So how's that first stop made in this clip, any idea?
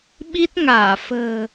implosive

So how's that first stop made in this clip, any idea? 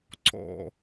click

